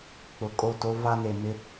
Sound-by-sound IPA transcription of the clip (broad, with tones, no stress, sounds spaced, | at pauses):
k͡p ʊ˨ kʼ o˦˨ t o˦ v a˦ n e˨ m ɪ˦